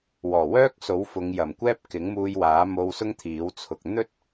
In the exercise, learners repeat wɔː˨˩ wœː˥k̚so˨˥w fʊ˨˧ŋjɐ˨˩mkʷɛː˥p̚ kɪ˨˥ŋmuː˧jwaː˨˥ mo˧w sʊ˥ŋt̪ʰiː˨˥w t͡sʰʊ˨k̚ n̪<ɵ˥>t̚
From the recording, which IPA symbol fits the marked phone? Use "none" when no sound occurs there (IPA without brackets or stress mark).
ɵ˥